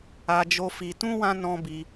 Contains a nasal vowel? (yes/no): yes